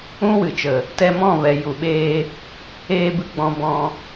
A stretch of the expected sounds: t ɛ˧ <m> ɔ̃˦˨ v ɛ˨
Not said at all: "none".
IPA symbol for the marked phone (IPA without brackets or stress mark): m